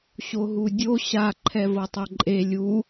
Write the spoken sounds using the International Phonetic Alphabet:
ɕ o ɦ u dʲ o ɕ a ǃʰ ɛ v ɤ tˤ ɤ ǃʼ e lʲ u

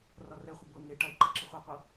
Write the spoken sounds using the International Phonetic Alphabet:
r ɒ r ɛ χʷ ɪ b ɤ n̪ e ʈ a i̯ ǃ ɤ ǁ ɪ χʷ a qʷ ɤ

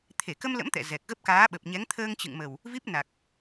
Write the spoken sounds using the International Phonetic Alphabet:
t̪ʰ e˧˩ k ə˧ m l ə̰˧˥ m t̪ ɛ̰˧˨ z ɛ˨˩ k̚ ɣ ə˦˥ p̚ k aː˨˦ ɓ ə˨˩ p̚ ɲ ɛ˨˦ ŋ t̪ʰ əː˧ ŋ t͡ɕ ɨ̰˧˨ ŋ m ə˨˩ w | v i˦˥ p̚ n a˨˩ k̚

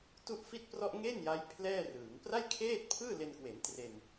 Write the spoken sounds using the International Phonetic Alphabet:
t u˥˩ ʔ f i˥˩ t̚ p r ɔ˥˩ ʔ ŋ e˥˩ n j a˦˥ j pʰ l ɛː˥˩ r ɯː˩˦ ŋ p r a˥˩ j kʰ eː˥˩ t̚ pʰ ɯː˥˩ l e˧ n k w e˩˦ n t r e˧ n

